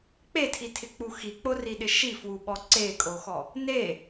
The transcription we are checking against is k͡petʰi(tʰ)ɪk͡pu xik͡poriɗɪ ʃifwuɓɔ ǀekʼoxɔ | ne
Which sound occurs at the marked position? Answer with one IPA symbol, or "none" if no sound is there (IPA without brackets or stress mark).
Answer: tʰ